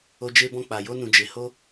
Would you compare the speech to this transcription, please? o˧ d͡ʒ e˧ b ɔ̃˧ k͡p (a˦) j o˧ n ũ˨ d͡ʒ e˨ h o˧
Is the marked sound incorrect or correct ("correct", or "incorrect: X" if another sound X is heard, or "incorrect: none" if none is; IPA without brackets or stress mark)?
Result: incorrect: a˨